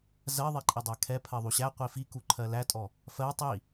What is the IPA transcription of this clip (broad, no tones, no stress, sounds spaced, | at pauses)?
z ɜ ðˤ i ǃʼ i dˤ æ kʰ ɛ pʰ ɜ ðˤ u ɕ æ qʷ i f i k u ǃʰ ɜ l æ tʼ ɔ | f ɜ tˤ i